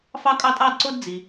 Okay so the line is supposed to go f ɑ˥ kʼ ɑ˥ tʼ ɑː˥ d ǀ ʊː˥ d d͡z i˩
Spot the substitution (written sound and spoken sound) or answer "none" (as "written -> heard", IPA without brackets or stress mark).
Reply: none